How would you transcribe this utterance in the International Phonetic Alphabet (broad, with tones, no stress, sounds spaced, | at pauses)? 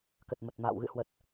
k ə˨˩ t̚ m ə˨˩ t̚ m a̰ː˧˨ w ɣ ɨ̰˧˨ h w ə˨˩ t̚